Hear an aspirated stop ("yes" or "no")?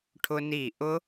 yes